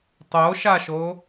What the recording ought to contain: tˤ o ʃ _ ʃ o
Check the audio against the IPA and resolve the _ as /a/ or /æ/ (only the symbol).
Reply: a